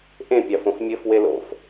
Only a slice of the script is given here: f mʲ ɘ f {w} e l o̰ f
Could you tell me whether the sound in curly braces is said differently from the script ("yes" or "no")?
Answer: no